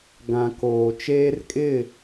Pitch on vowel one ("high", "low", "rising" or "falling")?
low